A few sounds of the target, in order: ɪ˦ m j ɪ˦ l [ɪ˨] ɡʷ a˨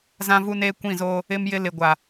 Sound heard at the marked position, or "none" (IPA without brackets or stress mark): ɪ˨